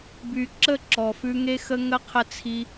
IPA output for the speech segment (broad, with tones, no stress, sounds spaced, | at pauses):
b y˨ ǁ ə˦˨ ǁ ɔ˨ f ʉ˧ ŋ e˦ x ə˦ ŋ ə˦ qʰ ə˦ t͡sʰ i˦